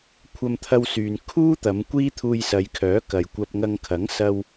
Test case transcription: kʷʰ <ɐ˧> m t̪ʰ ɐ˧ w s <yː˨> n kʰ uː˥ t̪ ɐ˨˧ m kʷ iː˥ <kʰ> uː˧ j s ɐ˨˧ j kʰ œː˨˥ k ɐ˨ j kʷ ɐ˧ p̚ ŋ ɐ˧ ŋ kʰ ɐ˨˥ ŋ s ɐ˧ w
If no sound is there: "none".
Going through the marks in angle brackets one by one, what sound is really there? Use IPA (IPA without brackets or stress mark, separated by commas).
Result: ɐ˧, yː˨, t̪ʰ